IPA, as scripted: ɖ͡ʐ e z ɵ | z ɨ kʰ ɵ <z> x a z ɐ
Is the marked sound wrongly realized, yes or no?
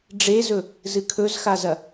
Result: no